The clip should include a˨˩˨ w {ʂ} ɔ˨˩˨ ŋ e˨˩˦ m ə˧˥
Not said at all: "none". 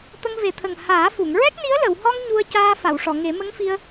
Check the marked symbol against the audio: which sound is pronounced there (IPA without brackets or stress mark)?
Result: ʂ